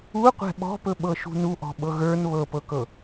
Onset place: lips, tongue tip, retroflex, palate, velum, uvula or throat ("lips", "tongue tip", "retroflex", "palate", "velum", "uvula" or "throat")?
uvula